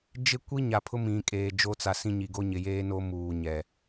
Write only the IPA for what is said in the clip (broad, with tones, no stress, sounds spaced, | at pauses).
d͡ʒ ɪ˦ kʷ i˦ ɲ a˨ pʰ ʊ˦ m ĩ˨ kʼ eː˨ d͡ʒ o˦ t͡s a˨ s ĩ˦ ɲ i˨ ɡ o˦ ɲ ɪ˨ j eː˦ n o˦ m uː˨ ɲ ɛ˨